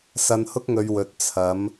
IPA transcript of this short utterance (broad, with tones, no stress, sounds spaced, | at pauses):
s ɐ˧ n h ʊ˥ k̚ ŋ ɵ˨˧ ɥ w ɵ˨˥ t̚ t͡sʰ ɐ˨˥ m